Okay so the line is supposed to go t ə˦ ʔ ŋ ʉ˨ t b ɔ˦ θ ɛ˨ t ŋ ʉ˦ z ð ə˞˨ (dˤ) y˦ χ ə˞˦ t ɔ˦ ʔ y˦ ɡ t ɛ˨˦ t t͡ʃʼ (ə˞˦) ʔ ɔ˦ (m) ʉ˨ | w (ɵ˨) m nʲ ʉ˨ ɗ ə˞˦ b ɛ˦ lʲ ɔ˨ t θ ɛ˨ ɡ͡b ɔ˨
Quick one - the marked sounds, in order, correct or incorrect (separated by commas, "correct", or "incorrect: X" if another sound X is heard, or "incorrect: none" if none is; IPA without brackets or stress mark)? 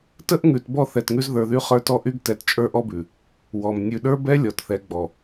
incorrect: ð, correct, incorrect: b, incorrect: ɔ˨